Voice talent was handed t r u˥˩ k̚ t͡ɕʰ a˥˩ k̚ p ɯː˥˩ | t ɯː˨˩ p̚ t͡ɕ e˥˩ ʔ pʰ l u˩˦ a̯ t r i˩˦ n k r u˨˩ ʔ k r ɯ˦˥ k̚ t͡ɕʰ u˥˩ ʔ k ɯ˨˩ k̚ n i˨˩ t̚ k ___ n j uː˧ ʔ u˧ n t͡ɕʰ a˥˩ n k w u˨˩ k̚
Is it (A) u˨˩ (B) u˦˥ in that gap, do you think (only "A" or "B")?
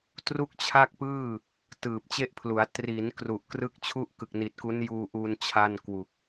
B